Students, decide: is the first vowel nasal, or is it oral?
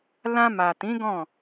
nasal